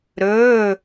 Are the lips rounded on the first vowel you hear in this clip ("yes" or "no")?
yes